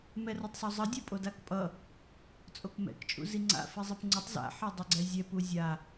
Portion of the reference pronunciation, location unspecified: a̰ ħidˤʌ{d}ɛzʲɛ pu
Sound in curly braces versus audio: incorrect: ɡ͡ǀ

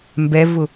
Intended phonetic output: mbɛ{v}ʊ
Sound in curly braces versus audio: correct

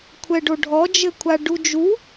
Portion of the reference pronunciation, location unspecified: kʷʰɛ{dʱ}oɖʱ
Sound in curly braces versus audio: incorrect: ɖ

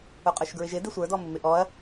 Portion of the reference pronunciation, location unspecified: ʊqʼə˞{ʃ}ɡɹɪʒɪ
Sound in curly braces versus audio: correct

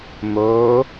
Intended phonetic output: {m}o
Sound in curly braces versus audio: correct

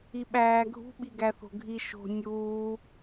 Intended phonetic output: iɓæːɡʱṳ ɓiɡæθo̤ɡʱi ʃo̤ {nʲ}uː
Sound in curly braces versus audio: correct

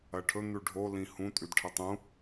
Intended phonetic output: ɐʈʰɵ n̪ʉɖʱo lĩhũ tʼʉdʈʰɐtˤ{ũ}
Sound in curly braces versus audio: correct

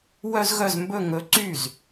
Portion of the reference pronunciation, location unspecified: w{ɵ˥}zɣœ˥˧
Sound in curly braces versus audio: incorrect: œ˥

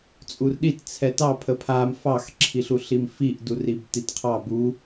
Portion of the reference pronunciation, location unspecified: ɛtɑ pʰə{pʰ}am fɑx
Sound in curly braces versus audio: correct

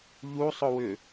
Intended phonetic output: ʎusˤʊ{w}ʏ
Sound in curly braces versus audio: correct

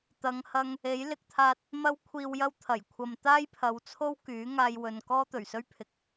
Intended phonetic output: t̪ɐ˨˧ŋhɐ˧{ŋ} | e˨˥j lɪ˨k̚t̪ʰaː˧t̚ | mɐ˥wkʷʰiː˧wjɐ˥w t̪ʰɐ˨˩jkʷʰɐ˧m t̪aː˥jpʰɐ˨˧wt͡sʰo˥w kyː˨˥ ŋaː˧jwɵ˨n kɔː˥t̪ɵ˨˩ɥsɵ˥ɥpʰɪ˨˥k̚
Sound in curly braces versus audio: correct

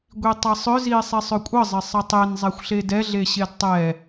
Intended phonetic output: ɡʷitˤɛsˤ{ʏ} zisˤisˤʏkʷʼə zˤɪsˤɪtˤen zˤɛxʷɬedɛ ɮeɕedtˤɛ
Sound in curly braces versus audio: correct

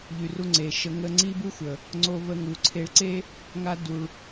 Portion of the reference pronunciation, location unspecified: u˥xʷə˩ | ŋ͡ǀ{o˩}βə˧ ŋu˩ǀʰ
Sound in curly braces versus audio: incorrect: o˧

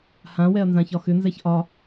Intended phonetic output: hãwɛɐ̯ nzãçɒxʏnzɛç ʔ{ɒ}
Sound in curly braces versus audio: correct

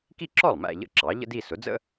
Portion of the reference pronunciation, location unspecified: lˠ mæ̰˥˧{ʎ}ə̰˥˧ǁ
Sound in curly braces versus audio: correct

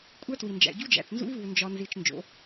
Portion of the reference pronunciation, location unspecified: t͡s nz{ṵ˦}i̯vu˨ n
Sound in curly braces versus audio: correct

